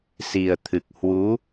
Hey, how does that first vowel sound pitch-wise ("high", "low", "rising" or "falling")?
low